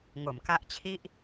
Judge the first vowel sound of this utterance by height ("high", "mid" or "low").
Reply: mid